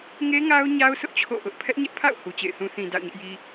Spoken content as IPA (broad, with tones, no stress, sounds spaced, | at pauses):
ŋ e˦ ŋ a˦ ʊ̯ ɲ a˦ ʊ̯ s ʊ˦ ʔ t͡ɕʰ o̰˦˨ ʔ ʊ˦ ʔ pʰ ɛ˦ ʔ ɲ ɛ˦ ʔ pʰ a̰˦˨ ʊ̯ h u˨ t͡ɕ ḛ˦˨ ɪ̯ θ ũ˦ θ ĩ˨ d a̰˦˨ ʊ̯ ɲ ɪ˦ ʔ j i˦